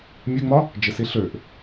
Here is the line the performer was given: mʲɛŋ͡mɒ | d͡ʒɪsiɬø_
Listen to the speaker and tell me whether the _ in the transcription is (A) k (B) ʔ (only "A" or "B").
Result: B